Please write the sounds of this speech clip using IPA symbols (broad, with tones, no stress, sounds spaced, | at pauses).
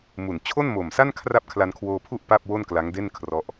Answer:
m u˨˩ n t͡ɕʰ o˥˩ n m o˨˩ m s a˥˩ n kʰ r a˥˩ p̚ kʰ l a˧ n kʰ w oː˧ pʰ u˥˩ ʔ p a˥˩ p̚ w o˥˩ n k l a˦˥ ŋ d e˥˩ n kʰ r ɔ˦˥ ʔ